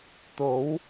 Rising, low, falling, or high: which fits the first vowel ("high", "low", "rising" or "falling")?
rising